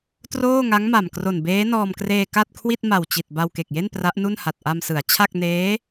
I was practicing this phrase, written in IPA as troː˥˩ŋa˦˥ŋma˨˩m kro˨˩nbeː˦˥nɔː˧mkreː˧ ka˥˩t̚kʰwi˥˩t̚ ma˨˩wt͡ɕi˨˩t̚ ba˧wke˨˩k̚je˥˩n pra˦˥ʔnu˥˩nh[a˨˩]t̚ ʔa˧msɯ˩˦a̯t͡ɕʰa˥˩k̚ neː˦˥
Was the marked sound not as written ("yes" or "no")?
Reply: no